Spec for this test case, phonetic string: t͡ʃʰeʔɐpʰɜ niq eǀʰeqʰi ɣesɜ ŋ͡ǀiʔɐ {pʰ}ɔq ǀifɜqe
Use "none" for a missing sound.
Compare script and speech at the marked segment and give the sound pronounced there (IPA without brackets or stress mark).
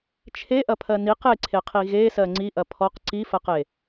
pʰ